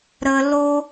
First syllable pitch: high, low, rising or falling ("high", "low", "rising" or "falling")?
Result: high